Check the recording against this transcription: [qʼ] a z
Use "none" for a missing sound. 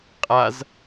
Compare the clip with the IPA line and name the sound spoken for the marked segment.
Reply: qʼ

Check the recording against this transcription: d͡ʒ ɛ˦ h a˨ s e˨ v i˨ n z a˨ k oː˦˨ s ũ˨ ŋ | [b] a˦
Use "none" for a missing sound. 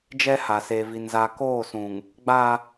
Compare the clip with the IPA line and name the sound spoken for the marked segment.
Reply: ɡ͡b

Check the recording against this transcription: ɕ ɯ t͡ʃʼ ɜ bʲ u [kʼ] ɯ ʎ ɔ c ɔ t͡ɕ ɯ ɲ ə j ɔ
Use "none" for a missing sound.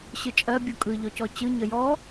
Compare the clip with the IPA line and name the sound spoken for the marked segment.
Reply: kʼ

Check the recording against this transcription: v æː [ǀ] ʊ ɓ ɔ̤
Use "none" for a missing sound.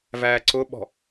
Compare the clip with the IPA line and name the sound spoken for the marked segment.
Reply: ǀ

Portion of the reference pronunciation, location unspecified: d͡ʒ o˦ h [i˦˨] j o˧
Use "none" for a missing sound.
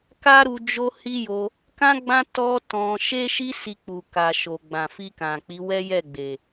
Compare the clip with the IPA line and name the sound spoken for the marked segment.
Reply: i˦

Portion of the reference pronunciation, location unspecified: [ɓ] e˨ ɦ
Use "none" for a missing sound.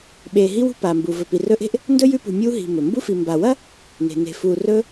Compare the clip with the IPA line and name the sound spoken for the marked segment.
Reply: ɓ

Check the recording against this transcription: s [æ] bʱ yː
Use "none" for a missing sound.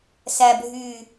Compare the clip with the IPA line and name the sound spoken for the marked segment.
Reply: æ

